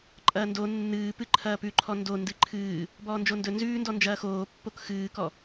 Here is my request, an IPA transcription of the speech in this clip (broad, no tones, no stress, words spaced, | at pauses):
ǃʼɐːndo nːɨː pɨǃʰɐːpʉ ǃʰɔndo ndɨǃʰɨː | bɔːnd͡ʒondɵ nzʉːndɔ nd͡ʒɐːxoː pːokxɨːkɔ